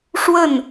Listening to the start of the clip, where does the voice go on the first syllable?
falling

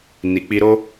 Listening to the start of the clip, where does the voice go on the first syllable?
low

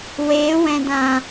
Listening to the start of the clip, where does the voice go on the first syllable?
rising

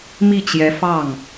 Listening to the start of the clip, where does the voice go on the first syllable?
falling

